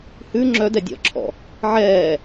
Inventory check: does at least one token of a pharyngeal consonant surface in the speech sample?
yes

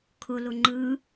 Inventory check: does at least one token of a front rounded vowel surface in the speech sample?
no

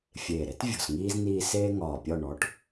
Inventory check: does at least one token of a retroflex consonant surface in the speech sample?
yes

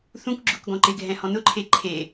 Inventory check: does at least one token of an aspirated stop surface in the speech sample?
yes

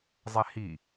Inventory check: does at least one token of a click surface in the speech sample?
no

